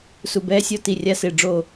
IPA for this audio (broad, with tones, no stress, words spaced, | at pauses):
su˨ bɛː˦sʲɔ˦ ti˨rʲa˦sɪː˨ɖ͡ʐo˦˨